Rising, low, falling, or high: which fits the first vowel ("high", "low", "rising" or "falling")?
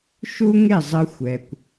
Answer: high